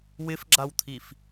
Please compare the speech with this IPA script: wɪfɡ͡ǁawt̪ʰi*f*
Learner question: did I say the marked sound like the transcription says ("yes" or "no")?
yes